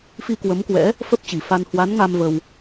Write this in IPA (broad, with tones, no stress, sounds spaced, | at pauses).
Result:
f i˧ k w ə˨˦ m k w ɛ̰˧˥ | f ə˦˥ p̚ t͡ɕ i˧˩ f a˧ n h w a˨˦ n ŋ a˧ m v ə˧ w